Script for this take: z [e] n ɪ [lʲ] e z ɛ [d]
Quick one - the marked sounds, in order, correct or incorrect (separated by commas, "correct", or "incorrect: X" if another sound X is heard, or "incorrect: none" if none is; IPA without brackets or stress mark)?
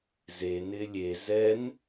correct, correct, incorrect: n